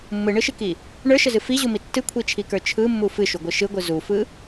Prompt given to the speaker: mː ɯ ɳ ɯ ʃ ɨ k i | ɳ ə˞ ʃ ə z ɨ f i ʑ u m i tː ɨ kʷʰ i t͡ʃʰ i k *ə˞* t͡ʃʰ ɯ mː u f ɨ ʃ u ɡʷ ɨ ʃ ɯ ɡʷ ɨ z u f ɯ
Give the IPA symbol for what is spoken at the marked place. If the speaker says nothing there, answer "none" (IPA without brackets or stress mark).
ə˞